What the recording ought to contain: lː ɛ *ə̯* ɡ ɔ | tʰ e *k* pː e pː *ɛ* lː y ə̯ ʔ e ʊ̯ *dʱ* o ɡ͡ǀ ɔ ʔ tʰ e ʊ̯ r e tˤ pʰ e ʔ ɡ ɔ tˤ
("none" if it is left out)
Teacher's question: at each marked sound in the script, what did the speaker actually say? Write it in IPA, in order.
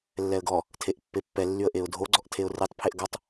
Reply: ə̯, ʔ, ɛ, dʱ

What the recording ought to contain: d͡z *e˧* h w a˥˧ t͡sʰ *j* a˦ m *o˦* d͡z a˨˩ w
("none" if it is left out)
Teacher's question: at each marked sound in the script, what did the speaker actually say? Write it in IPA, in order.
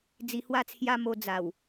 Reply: i˧, j, o˧

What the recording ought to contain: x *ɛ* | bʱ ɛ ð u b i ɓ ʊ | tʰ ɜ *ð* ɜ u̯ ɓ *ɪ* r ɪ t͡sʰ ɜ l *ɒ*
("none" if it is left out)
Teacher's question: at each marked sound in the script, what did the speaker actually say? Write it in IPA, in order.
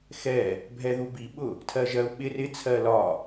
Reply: ɛ, ʒ, ɪ, ɒ

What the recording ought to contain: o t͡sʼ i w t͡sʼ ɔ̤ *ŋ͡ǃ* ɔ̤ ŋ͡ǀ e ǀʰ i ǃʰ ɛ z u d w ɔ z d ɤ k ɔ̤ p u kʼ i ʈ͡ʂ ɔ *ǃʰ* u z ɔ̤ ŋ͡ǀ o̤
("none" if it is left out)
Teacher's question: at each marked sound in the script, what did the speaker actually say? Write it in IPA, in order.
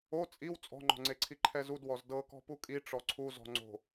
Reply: ŋ͡ǃ, ǀʰ

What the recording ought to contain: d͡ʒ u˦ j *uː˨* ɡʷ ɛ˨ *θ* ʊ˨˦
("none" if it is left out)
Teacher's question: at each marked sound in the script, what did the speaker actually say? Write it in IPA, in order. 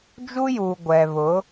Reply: uː˨, β

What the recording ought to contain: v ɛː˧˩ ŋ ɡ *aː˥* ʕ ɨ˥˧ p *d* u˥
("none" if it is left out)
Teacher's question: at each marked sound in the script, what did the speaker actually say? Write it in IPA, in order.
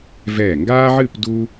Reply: aː˥, d

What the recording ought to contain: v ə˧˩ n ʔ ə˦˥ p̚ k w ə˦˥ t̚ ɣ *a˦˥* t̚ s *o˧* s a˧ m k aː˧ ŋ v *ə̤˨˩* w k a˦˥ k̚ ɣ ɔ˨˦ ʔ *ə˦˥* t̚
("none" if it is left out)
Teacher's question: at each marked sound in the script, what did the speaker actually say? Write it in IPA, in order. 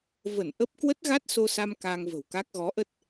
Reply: a˦˥, o˧, ə̤˨˩, ə˦˥

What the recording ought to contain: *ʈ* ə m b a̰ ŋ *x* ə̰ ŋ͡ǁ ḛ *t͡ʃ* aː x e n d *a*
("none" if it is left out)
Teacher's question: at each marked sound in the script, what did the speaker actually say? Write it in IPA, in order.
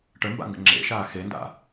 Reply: ʈ, ɡ, ʃ, a̰

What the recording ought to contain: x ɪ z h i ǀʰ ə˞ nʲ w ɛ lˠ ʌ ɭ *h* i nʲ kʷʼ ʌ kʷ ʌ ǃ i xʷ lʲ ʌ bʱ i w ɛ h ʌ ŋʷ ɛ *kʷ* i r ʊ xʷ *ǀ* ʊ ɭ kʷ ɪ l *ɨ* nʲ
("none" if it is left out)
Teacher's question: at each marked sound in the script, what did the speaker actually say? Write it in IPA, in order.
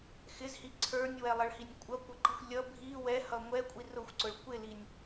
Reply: h, kʷʼ, ǀ, i

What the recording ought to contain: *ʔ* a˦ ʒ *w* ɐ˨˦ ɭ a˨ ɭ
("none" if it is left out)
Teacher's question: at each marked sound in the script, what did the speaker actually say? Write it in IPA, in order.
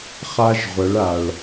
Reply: χ, ʁʷ

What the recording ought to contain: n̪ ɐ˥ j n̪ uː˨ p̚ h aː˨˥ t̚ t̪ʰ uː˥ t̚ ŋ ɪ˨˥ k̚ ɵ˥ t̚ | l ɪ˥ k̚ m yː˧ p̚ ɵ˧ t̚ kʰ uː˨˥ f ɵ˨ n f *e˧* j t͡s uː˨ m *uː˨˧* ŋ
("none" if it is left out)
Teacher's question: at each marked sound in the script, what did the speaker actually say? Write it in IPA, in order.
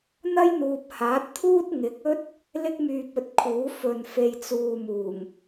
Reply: e˨, uː˨˩

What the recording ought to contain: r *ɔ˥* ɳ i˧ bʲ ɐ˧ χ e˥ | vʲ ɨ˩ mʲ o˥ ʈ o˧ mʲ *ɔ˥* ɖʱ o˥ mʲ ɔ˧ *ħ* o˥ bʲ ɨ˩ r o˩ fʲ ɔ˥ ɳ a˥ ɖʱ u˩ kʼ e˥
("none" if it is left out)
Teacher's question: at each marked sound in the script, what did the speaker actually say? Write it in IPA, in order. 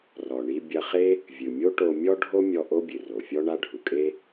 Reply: ɔ˩, ɔ˥, ʔ

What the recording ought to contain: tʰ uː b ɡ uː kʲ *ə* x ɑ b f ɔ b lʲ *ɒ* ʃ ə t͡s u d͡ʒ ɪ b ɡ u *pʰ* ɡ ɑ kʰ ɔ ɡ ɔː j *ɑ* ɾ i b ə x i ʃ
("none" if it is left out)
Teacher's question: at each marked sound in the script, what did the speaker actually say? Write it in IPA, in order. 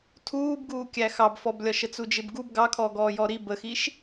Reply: æ, ɒ, b, ɔ

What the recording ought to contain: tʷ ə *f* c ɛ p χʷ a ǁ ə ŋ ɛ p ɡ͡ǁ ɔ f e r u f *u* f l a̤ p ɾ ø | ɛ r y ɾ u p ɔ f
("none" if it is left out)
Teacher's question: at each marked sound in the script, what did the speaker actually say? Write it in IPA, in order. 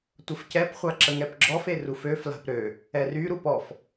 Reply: f, ø

